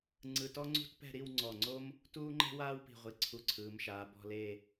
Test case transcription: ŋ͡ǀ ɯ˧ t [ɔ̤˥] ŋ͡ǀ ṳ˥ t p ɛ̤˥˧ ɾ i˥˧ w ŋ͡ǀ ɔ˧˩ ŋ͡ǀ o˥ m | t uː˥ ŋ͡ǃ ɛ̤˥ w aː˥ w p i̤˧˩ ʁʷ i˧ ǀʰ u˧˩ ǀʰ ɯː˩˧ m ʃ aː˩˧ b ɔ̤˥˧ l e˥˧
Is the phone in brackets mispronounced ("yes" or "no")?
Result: yes